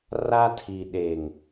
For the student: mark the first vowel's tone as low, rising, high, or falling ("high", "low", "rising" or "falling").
high